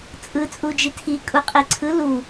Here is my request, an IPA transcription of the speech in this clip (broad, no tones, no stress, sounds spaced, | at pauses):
t͡sʼ ɯ t͡sʼ u d͡ʒ i tʰ i kʼ u qʼ i ǀʰ ɯ l u